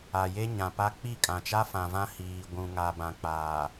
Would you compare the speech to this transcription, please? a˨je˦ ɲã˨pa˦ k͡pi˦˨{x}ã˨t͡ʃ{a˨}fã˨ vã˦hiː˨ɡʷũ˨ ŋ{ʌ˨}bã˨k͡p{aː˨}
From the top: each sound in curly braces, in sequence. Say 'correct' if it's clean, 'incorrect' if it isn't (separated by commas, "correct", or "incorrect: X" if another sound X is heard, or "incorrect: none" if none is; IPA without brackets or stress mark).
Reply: incorrect: kʼ, incorrect: a˦, incorrect: a˨, correct